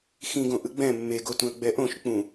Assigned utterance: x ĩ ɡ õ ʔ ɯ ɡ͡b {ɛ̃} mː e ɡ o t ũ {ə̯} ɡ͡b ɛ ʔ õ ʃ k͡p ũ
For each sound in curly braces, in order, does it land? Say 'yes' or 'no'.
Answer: yes, yes

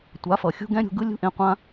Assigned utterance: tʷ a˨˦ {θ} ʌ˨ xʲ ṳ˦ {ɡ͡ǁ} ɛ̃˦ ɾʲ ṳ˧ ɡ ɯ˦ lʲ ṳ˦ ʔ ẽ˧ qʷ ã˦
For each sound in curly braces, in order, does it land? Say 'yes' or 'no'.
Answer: no, no

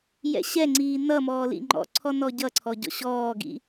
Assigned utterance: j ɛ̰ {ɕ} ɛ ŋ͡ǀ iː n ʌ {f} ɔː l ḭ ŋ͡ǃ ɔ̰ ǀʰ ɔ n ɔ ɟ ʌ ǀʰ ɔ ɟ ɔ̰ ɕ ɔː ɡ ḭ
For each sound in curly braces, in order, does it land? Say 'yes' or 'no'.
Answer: yes, no

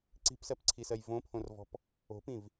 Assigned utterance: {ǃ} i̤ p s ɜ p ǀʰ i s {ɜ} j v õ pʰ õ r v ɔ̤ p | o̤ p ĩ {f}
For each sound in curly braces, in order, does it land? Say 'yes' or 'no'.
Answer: no, yes, no

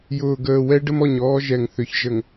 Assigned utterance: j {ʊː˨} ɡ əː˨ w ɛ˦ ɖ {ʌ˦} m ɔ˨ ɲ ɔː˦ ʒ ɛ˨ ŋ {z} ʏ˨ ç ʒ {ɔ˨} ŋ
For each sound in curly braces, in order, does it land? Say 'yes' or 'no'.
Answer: yes, no, no, no

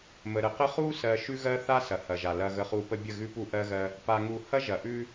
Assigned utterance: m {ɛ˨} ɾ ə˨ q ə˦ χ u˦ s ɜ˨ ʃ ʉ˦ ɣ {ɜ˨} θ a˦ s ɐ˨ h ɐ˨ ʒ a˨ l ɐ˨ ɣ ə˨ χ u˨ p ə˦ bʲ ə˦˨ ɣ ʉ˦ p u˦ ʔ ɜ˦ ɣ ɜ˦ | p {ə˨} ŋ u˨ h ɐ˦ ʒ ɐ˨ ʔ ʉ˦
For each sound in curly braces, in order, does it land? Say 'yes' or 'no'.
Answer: no, no, no

